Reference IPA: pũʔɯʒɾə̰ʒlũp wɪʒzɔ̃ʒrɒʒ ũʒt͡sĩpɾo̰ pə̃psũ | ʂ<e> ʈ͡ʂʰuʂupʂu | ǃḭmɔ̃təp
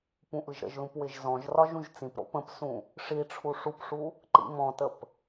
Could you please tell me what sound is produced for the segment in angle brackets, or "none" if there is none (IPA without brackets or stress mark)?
i